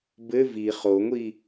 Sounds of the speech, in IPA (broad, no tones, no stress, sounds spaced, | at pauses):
b ɘ v i χ o ŋʷ i